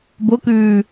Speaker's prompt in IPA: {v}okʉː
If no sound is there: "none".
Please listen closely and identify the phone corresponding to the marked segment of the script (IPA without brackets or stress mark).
b